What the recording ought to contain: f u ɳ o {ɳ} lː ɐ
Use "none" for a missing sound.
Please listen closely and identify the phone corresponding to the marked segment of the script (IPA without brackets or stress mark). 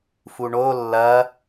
none